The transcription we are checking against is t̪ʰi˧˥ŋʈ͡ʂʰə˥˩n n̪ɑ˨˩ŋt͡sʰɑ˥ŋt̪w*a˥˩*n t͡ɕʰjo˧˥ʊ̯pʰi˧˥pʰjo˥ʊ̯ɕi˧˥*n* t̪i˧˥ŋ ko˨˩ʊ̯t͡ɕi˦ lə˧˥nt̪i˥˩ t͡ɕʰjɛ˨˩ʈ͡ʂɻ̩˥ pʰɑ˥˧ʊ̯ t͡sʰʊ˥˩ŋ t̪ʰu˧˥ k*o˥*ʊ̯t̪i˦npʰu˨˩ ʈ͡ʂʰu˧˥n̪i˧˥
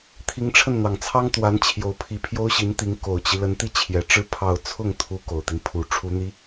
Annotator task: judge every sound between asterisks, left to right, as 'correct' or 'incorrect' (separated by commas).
incorrect, correct, incorrect